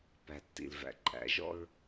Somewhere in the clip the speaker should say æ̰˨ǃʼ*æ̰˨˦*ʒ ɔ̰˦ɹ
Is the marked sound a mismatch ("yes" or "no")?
no